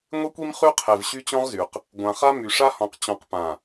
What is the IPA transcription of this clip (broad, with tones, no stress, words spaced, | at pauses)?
ŋʷe˦kʷi˦m χy˦ qʰe˨vɕy˦t͡ɕɔ̃˦ʁzy˨q | ɡʷã˨χa˦ my˨ʂa˦hɔ̃˨q t͡ɕɔ̃˨qpã˨